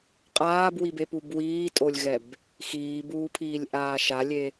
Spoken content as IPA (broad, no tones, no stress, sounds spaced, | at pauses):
qʼ aː b w i b e p u b w iː tʼ o lʲ ɣ ɛ b | x iː b uː pʰ iː lʲ ʔ aː ʃ a lʲ e